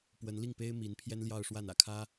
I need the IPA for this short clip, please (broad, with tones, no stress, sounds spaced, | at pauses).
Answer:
p w ə˧˥ n l i˥˩ ŋ p e˥ ɪ̯ m i˧˥ n pʰ j ɛ˥ n l j ɑ˥˧ ʊ̯ ʂ w a˥˩ n ä̰˨˩ kʰ ä˥